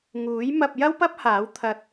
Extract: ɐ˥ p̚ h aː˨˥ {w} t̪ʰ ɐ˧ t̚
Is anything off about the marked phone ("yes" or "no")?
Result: no